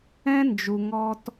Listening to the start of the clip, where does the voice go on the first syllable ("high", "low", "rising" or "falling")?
high